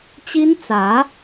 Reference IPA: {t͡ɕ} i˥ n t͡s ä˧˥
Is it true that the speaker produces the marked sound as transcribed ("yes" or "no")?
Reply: yes